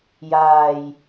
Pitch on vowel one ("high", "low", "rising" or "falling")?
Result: low